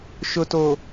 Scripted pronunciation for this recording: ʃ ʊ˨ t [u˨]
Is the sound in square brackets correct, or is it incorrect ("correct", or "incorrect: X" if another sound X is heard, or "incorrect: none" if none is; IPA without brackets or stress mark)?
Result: incorrect: o˨